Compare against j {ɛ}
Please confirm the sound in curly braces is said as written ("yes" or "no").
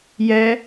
yes